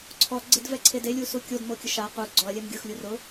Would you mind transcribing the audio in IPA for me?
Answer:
ǀʰ ɔ ɡ͡ǀ e d v ɛ ǀʰ e d e lʲ u s u kʲ o d m o kʲ ʊ ʃ a q u ɡ͡ǀ ɔ ɐ̯ lʲ ɛ m ɡʲ ʊ x lʲ u r ʊ

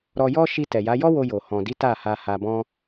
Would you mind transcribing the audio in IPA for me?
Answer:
ɾ ɔ˧ j ɔ˦ ʃ i˧ t ɛ˨ j a˨˦ j ɔ˦ w o˧ j o˨ h ɔ̃˨ d i˨˦ t a˦˨ h a˧ h a˧ b ɔ̃˦

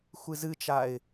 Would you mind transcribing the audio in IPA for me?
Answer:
xʷ ɨ z ɨ t͡ʃ a ɪ̯

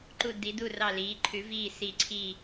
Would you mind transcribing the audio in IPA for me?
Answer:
ǃ u˥˧ d i˧˥ d u˥˧ r ɑ˥˧ l iː˧˥ ǃʰ ʉ˧˥ v iː˥˧ s i˥˧ ǀʰ i˥˧

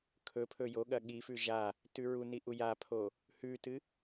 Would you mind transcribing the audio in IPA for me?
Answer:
kʰ ɵ pʰ ɵ j o ɠ ɐ ɠ i f ʉ ʒ a | t ʉ ɹ u n i ʔ u j a pʰ o | h ʉ t ɨ

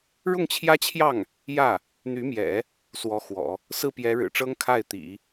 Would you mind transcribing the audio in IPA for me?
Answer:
ɻ ʊ˥˩ ŋ t͡ɕʰ j ä˥ t͡ɕʰ j ɑ˥˩ ŋ | j ä˥˩ | n̪ y˧˥ m j ɛ̰˨˩˦ | s w ɔ˧˥ x w ɔ̰˨˩˦ | s ɹ̩˥˩ p j ɛ˧˥ ɻ ɻ̩˨˩ ʈ͡ʂ ɤ˥ ŋ kʰ a˥˩ ɪ̯ t̪ ḭ˨˩˦

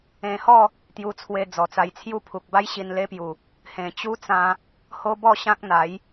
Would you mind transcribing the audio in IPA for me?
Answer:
ẽ˧ h ɔ˥˧ | t̪ j u˧ t͡sʰ w e˧ d͡z ɔ˨˩ t͡s a˧ j t͡sʰ j u˦ pʰ u˨ k̚ b a˦ j ɕ i˧ n l e˦ p j u˨˩ | h ẽ˨˩ t͡ɕ u˦ t͡s ã˧ | h o˦ b ɔ˥˧ ɕ ã˦ k̚ n̪ a˨˦ j

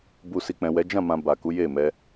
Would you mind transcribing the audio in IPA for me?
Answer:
b u˨ s i˨ k͡p ɛ̃˨ w ɛ˨˦ d͡ʒ ã˦˨ m ã˨ b a˨ k u˨˦ j e˦˨ m ɛ˧

